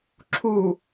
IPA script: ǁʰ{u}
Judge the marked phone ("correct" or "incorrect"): correct